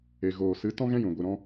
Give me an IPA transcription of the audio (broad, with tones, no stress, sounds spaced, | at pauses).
e˨ ɣ oː˨ s ɨ˨˦ t ɔ̃˦ ɣ ɛ̃˦ j ũ˨ ɡʷ ɨ˨ ɾ ɔ̃˧